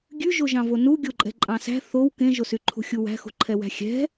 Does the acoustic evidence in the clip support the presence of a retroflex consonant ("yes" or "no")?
no